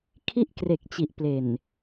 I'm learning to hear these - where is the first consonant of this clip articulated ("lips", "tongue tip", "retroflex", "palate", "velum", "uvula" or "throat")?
velum